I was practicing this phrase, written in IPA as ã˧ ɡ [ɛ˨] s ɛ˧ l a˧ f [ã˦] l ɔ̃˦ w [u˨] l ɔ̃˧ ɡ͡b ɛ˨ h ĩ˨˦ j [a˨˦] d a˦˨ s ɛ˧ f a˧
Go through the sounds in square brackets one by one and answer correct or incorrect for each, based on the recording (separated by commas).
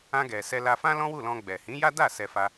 correct, correct, incorrect, incorrect